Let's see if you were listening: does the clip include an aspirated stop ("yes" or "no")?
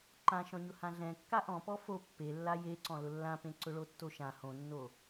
no